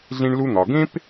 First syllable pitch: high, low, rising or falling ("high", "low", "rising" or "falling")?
high